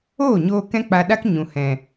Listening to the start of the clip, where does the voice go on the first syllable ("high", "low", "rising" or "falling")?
falling